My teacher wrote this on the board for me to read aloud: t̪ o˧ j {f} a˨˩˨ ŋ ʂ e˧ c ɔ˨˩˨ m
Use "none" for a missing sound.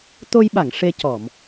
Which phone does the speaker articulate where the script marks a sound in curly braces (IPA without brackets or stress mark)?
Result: ɓ